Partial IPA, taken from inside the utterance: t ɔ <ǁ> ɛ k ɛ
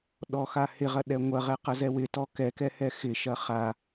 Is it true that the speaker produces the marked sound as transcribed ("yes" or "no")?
no